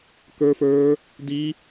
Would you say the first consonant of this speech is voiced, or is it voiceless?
voiceless